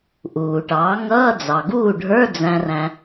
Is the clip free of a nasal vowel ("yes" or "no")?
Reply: no